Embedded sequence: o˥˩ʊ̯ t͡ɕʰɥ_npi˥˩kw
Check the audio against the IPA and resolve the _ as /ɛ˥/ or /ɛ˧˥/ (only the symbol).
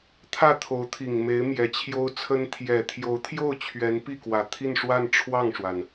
ɛ˧˥